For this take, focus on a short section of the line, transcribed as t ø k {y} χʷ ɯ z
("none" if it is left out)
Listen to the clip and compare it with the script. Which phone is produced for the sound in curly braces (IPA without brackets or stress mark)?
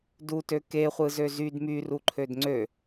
e